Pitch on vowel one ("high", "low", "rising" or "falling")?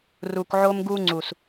low